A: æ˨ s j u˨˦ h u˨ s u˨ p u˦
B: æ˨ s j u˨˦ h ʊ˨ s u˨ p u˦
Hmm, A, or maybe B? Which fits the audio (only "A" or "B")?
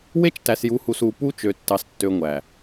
A